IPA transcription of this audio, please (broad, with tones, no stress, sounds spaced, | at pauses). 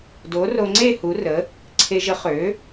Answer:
d o˨˥ r o˧ ŋ͡ǀ e˥˧ h u˨˥ r ə˨˥ | ǀʰ e˧ ʒ ə˨˥ χ ø˨˥